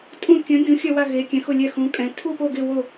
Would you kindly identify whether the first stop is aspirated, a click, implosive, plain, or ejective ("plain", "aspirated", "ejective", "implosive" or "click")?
ejective